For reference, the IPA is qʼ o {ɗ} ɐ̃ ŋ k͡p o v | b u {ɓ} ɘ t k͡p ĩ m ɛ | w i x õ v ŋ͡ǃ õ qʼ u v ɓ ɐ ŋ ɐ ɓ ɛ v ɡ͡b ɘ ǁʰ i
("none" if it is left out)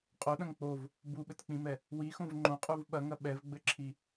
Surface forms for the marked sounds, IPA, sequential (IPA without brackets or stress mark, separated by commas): ɗ, ɓ